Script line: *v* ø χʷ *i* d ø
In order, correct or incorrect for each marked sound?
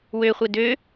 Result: incorrect: w, incorrect: e

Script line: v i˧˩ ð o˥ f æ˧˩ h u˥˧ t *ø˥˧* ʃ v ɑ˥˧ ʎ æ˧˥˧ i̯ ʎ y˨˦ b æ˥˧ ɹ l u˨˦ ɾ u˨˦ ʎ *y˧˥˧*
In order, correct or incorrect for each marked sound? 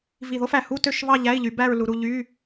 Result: correct, correct

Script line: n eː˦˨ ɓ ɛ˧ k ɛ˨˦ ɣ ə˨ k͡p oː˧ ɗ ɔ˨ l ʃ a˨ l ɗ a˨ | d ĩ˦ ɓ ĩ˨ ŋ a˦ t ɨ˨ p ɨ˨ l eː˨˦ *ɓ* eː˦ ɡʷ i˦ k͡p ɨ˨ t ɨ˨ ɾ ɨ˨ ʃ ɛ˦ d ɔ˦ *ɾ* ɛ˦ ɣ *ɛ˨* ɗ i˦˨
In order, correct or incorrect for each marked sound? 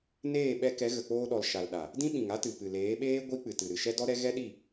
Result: correct, correct, incorrect: ɛ˦

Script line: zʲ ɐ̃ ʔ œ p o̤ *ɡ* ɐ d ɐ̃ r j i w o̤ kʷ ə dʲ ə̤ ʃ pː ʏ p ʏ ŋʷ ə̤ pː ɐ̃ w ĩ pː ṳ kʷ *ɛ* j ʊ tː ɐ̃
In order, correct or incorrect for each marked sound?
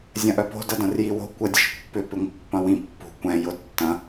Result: incorrect: d, incorrect: ɛ̃

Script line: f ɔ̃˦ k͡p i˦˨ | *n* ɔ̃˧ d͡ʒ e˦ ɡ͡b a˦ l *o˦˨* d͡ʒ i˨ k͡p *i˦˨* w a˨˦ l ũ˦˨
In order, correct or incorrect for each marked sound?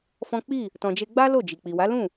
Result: incorrect: t, correct, incorrect: i˨

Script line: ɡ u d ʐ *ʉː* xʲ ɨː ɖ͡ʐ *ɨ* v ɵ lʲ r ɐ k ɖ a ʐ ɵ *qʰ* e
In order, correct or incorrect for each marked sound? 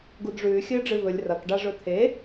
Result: correct, correct, incorrect: t̪ʰ

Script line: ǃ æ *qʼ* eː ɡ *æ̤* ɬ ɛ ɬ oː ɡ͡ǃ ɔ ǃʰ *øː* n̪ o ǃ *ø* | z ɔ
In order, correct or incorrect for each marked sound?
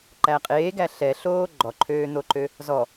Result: correct, incorrect: æ, correct, correct

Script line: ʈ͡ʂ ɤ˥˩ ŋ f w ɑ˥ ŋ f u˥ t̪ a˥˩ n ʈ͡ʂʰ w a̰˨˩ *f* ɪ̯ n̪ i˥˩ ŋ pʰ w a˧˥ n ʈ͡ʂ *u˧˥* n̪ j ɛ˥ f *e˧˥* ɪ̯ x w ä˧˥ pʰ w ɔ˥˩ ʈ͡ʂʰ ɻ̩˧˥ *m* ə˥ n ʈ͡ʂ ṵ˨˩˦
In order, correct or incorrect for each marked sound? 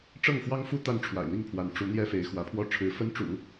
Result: incorrect: none, correct, correct, incorrect: f

